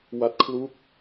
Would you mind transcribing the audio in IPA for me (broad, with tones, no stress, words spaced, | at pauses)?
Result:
wa˦˥t̚ kʰlu˦˥k̚